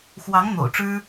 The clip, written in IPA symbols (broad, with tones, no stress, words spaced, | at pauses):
xwɑ˧˥ŋ n̪o̰˨˩ʊ̯ʈ͡ʂɻ̩˥